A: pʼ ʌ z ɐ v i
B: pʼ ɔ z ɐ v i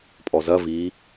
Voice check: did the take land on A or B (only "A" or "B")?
B